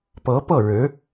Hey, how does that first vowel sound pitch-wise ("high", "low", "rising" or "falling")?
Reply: rising